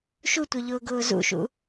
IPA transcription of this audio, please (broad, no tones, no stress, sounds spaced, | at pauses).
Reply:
ʃ u tʷ œ ʎ ʊː ɡ ʊː z ṵ ʃ ṵ